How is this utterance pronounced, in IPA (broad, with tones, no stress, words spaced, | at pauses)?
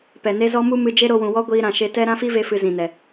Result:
pɛ˨ne˦zɔ˦ mu˦ mɨ˧d͡ʒe˦ ɾo˧wũ˨wɔ˦ ɡʷiː˧ɾã˨ ʃe˧tɛ˦ ɾã˦fi˦ve˧fɨ˨ zĩ˨nɛ˨